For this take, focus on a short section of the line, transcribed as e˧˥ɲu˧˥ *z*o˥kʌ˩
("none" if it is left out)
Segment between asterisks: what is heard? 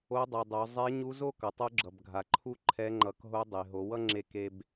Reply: z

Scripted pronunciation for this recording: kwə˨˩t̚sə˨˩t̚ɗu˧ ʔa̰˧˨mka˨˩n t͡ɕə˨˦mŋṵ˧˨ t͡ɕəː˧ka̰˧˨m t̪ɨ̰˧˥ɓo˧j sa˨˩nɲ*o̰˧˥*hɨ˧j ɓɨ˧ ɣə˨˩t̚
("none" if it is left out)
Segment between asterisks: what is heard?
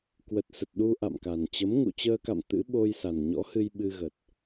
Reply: ɔ̰˧˥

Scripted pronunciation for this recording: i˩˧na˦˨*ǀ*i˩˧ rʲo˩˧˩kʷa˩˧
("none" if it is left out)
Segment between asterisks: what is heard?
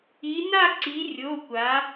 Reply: ǀ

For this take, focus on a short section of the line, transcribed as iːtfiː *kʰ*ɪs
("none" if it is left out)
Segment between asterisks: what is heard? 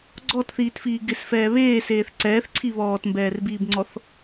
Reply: ɡ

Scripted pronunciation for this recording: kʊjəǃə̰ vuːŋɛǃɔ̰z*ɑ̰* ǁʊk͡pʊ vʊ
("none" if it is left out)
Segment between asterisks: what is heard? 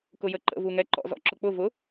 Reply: ɔ̰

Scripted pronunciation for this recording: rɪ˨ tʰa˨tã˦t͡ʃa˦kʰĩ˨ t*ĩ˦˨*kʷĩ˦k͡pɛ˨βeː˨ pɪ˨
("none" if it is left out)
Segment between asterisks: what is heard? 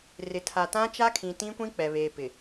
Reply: ĩ˦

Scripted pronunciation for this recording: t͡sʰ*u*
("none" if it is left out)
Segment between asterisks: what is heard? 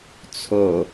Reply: o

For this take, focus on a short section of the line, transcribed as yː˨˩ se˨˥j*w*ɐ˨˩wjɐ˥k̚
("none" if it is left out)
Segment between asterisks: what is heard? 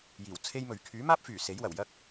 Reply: w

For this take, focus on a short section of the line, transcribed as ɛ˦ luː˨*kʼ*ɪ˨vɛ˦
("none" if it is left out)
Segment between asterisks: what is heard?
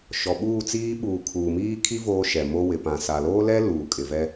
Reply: kʼ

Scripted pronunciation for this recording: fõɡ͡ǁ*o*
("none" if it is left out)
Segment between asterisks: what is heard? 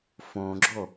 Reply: o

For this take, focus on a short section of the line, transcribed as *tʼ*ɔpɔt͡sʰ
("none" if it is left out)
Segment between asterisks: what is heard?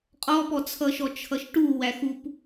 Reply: qʼ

